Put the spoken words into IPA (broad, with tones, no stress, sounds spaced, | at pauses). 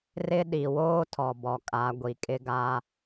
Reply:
r ɪ˦ ɗ i˨ w oː˦ tʰ ɔ˨ b ɔ˨ kʼ a˨˦ ɡʷ i˨ kʼ ɪ˦ ɡ a˦